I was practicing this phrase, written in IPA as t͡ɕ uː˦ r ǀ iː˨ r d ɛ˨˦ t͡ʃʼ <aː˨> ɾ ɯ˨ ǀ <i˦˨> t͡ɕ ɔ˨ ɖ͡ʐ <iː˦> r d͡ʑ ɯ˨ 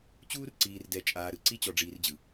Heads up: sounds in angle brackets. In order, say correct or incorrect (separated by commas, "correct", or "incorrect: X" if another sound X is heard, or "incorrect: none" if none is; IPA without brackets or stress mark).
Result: correct, incorrect: i˦, incorrect: iː˨